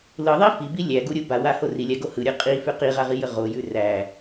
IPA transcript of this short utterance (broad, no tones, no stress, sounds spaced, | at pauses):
l ɯ ðˤ i f i b i lʲ æ ɡ u ɾʲ u b a w a h o r i lʲ a ɡ o h ɯ ɾʲ ɯ qʼ i f ʉ q i ʁ a ʁ i j ə ʁ o j ʉ r æ